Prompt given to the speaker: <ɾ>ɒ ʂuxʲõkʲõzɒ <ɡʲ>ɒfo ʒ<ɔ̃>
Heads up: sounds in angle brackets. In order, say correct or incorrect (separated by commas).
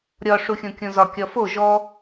incorrect, incorrect, incorrect